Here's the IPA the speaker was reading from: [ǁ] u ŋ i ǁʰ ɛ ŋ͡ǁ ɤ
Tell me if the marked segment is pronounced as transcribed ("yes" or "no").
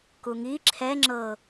no